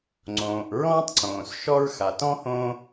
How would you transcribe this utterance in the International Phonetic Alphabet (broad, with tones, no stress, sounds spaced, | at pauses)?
ŋ͡ǀ õː˩ ʔ ɹ ɔ̃ː˥ tˤ ǀ õː˩ s ʃ ɔ˥ ɹ x a˩ t ɔ̃˥ h õː˥